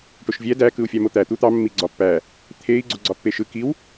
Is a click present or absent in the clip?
present